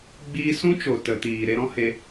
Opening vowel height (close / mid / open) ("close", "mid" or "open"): close